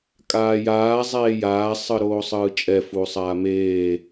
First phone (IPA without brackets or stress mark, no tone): kʼ